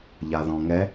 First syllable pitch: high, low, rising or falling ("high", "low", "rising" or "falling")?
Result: low